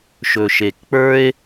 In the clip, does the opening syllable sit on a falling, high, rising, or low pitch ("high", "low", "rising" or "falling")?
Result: low